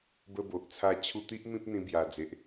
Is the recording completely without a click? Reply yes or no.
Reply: yes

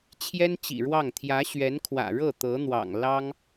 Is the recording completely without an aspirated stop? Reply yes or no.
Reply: no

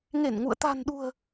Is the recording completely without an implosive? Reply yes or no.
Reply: no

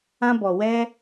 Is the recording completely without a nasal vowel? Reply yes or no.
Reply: no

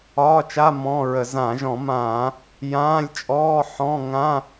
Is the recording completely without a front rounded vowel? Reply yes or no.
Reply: yes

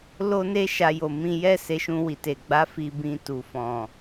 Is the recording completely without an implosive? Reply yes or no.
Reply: yes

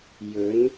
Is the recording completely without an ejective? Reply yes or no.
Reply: yes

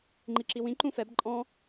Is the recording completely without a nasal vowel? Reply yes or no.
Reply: no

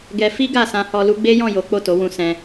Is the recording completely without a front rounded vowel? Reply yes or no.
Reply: yes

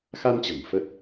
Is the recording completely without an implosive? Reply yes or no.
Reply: yes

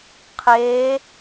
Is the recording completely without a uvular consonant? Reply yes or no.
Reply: no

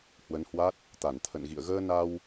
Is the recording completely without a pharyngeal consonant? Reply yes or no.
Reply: yes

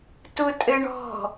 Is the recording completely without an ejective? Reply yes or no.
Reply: no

